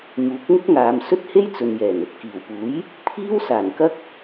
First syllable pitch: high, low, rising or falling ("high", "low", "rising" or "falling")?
rising